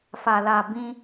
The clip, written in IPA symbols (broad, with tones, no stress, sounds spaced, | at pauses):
f a˨ l a˨ b ĩ˧